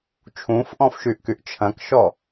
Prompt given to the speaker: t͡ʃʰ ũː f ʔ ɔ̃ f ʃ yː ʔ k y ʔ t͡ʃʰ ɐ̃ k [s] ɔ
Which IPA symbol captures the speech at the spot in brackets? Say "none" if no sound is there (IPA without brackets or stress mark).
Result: ʃ